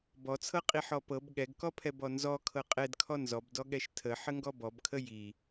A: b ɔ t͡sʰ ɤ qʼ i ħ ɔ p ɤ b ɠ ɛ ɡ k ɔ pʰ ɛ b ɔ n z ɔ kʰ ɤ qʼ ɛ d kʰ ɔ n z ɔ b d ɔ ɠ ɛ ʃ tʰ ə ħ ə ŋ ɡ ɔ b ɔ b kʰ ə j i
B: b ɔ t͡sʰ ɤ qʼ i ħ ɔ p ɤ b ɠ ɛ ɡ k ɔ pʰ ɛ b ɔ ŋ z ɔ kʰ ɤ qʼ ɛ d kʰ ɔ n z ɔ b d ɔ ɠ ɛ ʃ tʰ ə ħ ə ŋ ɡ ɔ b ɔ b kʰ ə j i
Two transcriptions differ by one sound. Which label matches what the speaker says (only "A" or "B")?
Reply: A